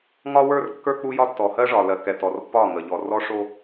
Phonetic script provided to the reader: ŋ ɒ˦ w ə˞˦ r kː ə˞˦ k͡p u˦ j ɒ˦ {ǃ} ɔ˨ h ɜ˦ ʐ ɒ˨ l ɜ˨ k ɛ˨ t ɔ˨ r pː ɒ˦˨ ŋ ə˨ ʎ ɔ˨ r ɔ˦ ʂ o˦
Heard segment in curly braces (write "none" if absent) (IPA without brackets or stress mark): tː